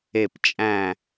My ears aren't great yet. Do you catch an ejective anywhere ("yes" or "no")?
yes